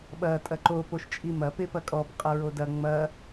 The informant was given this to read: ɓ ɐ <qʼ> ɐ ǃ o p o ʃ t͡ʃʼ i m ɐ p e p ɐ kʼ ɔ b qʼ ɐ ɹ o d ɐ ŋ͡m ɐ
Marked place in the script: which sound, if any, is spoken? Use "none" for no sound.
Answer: tʼ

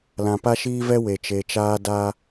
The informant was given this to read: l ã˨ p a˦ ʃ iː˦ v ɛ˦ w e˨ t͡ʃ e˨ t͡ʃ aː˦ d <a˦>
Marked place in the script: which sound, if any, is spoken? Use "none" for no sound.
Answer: a˦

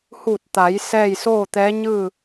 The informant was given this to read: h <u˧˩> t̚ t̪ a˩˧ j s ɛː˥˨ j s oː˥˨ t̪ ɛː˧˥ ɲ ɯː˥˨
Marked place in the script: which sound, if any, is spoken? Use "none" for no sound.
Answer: u˧˩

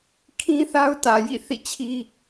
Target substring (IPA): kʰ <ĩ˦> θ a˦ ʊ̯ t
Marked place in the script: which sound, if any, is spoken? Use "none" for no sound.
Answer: ĩ˦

